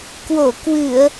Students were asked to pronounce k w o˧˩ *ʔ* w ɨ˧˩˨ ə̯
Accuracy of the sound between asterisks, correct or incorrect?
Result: incorrect